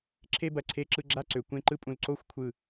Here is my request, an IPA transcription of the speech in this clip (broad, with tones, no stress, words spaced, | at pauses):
ǁʰe˥bɐ˧˩ǀʰe˥˧ǁɯ˥˧ ɡ͡ǁa˥ǀø˩˧ kʷẽ˥˧ǃɯ˥pʼũ˧l ǀo˥˧xʷkʷʰɯ˧˩